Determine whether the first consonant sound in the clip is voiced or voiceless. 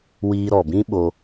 voiced